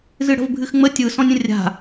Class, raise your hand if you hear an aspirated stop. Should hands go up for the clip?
no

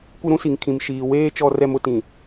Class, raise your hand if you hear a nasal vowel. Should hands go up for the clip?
yes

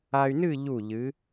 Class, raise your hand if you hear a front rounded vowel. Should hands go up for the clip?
yes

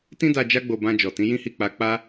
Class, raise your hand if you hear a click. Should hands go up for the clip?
no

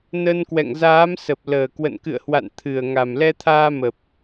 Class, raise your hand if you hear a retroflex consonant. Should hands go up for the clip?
no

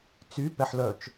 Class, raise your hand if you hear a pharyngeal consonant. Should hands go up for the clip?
yes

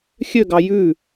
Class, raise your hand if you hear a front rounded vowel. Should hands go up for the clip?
yes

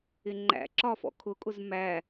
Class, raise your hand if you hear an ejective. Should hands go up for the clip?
yes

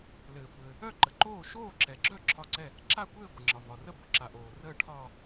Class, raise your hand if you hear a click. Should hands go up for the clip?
yes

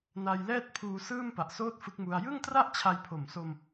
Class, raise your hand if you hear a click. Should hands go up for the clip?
no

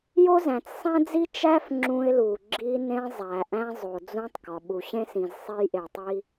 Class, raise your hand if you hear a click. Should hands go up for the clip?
yes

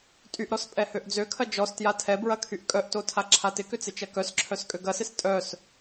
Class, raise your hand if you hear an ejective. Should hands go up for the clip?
yes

